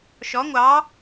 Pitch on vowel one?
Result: rising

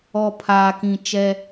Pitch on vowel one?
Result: low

